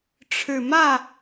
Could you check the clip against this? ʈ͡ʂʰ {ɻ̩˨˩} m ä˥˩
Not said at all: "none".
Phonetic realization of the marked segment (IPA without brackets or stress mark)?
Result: ɻ̩˨˩